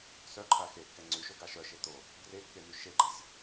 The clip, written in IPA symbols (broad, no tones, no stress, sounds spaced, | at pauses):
s œ ǃʰ a x e kː ɛ ŋ͡ǀ y ʃ o ɡ a ʃ œ ʃ e t̪ o | ɡ r e kː e m y ʃ e ɡ͡ǃ a sʲ